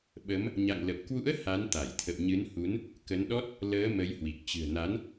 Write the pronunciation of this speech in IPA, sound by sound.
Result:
ɓ ə˨˦ m | ɲ a̰˧˨ ŋ l ə˨˩ p̚ k w ṵ˧˥ ə̯ h a˨˦ n t̪ a˧˩ j t̪ʰ ə̰˧˨ w ɲ ɨ˨˦ n h u˨˦ n | k ə˨˦ n ɗ ɔ˦˥ t̚ | l əː˨˦ m ə˨˦ j h w i˨˩ k̚ t͡ɕ ɨ̤˨˩ ə̯ n a˨˦ n

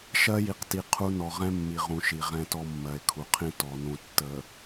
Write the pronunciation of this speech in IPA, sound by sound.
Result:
ʃ ɜ˦ j i˨ q t i˨ qʰ u˦ n ɔ˨ ʁ ɛ̃˦ mː i˨ ʁ ũ˨ ʃ i˨ ʁ ɛ̃˦ t ɔ˦ mː ɜ˨ e̯ kʰ u˨ qʰ ĩ˦ t ɔ˨ n ũ˨ tː ə˨

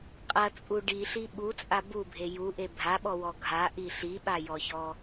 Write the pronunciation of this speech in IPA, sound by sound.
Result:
qʼ ɐ t͡sʼ u ɖ i ɬ i ɓ u t͡sʼ a b u bʱ e j u ʔ e bʱ a ɓ ɔ w ɔ ɡʱ a ʔ i ɬ i ɓ a j ɔ ç ɔ

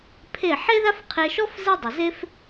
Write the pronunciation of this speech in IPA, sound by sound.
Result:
pʰ e˥˩ ħ e˥ ð a˥ f qʰ e˧ ʃ ɔ˥ f z e˥ dˤ ʏ˩ z e˥ f

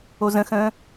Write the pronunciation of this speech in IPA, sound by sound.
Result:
o z ə̃ x ə̃ː

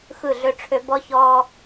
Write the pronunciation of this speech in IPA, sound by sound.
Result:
x ɯ˦˨ ɮ ø˦ ʈ͡ʂʰ ø˦ b ɔ˦ ç ɔː˦

